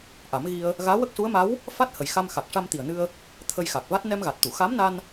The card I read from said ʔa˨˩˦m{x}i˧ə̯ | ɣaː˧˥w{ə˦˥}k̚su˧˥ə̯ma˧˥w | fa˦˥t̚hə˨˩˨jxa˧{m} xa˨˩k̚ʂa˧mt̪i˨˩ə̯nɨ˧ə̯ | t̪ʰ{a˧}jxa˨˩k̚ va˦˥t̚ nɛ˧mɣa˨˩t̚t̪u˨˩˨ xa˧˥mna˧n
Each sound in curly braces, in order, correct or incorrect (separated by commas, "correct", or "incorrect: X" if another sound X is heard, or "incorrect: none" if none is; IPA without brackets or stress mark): incorrect: ɣ, correct, correct, incorrect: ə˧